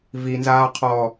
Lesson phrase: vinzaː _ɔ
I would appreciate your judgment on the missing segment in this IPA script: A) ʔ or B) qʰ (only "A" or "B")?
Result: B